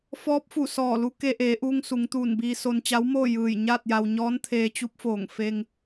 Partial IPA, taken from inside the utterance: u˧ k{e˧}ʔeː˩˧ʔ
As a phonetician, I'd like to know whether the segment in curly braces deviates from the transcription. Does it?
no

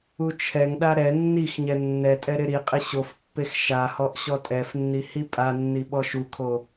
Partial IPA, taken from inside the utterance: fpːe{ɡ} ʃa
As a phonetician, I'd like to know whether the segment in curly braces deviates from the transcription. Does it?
yes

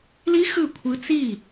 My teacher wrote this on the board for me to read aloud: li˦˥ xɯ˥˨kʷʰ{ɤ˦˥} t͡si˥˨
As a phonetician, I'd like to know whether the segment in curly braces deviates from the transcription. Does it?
yes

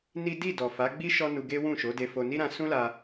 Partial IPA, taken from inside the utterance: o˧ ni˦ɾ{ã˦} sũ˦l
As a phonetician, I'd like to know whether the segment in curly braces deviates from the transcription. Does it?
yes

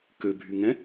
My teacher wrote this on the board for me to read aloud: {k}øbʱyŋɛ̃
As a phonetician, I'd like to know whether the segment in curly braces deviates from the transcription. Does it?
no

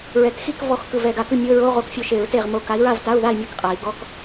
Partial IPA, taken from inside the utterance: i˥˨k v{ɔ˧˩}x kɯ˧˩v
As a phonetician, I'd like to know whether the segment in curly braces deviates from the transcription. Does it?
yes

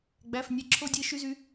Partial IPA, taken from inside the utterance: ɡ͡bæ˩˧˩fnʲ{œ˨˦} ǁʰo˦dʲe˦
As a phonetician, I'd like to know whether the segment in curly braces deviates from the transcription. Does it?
yes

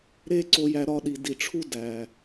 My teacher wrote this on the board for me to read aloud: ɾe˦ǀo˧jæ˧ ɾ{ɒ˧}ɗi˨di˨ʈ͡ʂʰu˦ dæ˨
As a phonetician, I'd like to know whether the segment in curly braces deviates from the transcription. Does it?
no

